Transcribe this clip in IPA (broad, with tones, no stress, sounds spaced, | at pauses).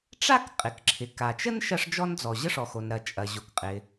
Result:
ʈ͡ʂ a˥ k qʼ ɪ˩ k ǁʰ ɪ˩ k a˩ t͡ʃ ə˥ n ʃ ɐ˥ ʂ d͡ʒ ɔ˥ n d͡z ɔ˩ ʑ ə˥ ʂ ɔ˩ x o˩ n ɾ ɐ˩ t͡ʃʼ ɐ˩ ʑ o˩ k qʼ ɪ˩